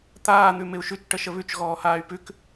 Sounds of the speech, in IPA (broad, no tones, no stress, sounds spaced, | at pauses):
t̪ aː n̪ ʉ m ɪ u̯ ʃ ʉ t͡ʃ ʈ ə ʃ ə β ʉ t͡ʃ ɣ ɔː h aː y̯ p ʉ k